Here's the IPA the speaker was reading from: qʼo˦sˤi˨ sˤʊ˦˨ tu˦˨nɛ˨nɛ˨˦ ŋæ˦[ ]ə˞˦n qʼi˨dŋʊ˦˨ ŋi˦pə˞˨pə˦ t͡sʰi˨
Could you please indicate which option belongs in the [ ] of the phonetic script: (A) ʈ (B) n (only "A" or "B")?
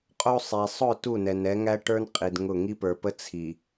A